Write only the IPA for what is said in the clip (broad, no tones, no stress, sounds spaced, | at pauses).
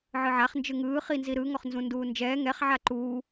ʕ ɯ ʕ a χ n d͡ʒ ɯ ŋ ɯː χ i n z i ɾ ɯ ŋ ɔ χ n z ũ n d uː n d͡ʒ ɛː ŋ ɛ χ ʕ a ǃ uː